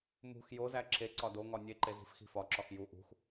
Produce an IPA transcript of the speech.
mṳx jozæ ǁe ǀɒdoŋɒ nʲeǃe zi̤fxi̤fɒǁɒx ju ʔṳx

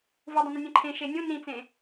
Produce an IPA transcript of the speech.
vudˤə̃nə̃ nʲɛ̃ǃʰẽ ʃenʲũ nĩt͡sẽ

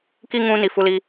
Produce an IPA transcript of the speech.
ki˦ ŋũ˦ ni˦fu˦li˦

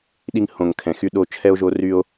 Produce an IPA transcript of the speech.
ɗi˧ŋhõ˨ŋkʰɛ̃˨ xy˧ɗo˧ t͡ʃʰɛ˧o̯ʒo˧ ry˧o̯

